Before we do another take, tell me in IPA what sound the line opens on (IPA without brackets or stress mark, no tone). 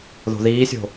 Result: ð